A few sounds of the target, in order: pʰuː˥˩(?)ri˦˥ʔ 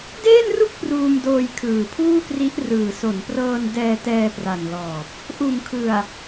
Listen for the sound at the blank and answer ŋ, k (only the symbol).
k